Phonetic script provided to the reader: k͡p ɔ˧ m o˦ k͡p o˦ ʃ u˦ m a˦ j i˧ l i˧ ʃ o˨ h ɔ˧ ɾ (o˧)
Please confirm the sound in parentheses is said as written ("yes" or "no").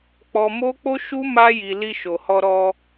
no